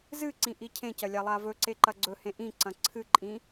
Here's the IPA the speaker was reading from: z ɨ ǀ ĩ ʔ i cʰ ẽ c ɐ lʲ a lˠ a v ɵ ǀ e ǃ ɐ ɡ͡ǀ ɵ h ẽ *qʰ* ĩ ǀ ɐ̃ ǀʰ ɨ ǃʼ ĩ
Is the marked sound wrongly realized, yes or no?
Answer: yes